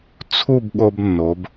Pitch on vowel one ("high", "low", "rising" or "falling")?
falling